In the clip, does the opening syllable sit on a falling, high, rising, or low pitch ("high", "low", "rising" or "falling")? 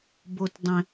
low